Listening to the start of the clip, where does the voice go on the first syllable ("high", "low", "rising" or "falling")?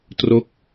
falling